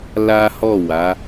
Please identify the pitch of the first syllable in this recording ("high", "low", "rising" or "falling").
high